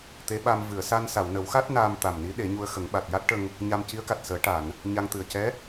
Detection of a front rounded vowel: absent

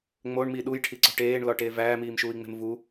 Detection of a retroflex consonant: present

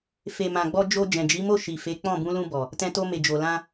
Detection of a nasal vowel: present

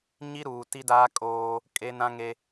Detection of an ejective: present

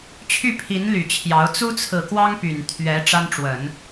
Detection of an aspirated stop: present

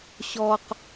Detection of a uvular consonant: present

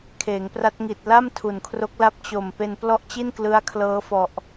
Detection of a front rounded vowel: absent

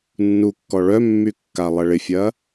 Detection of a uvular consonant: absent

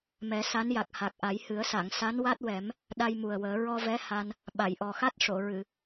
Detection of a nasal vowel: absent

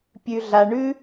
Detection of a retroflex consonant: present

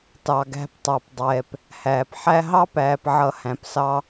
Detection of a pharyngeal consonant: present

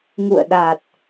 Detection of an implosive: present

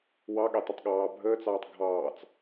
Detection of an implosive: present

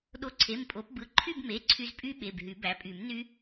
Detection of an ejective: present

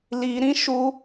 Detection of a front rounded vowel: absent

